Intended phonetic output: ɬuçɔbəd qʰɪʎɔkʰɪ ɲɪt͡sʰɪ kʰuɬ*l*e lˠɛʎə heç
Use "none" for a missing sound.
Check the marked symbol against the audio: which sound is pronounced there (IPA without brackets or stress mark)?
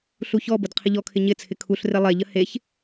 r